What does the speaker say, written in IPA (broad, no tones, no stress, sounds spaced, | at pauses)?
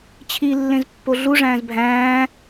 t͡ɕʰ i lː ẽ z pː o ɮ u ʐ æ̃ː z bʱ æ̃ː